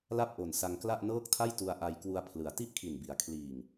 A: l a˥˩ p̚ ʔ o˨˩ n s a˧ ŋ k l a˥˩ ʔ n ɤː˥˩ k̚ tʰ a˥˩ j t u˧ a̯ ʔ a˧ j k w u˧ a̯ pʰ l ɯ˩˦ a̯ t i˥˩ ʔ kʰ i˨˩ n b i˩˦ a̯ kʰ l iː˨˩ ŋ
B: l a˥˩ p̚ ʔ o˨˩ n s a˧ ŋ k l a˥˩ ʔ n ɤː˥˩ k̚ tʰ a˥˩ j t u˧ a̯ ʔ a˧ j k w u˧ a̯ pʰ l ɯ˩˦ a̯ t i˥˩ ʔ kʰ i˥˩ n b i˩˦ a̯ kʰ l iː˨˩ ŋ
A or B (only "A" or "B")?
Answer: A